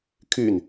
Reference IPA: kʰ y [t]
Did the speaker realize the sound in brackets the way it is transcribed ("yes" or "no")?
no